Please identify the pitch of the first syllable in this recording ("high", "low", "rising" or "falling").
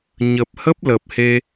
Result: low